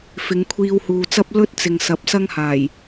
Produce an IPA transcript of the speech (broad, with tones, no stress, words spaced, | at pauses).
fɪ˨˧ŋkʷʰiː˧whuː˨t͡sɐ˥p̚ lɵ˥t̚t͡sɪ˨ŋ sɐ˨˥p̚sɐ˥ŋhaː˨˩j